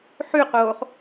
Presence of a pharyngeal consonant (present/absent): present